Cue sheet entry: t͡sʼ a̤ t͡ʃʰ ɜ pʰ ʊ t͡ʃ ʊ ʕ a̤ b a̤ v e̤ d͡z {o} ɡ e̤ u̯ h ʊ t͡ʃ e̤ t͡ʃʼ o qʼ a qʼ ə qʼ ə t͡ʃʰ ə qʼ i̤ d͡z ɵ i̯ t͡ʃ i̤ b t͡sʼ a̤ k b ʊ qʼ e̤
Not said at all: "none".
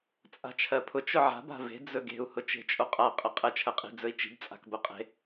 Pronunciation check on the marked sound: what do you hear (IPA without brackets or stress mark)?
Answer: ɵ